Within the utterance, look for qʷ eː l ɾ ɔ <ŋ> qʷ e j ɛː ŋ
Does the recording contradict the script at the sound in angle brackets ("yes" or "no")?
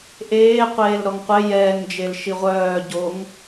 no